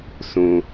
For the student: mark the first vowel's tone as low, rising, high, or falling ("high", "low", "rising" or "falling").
low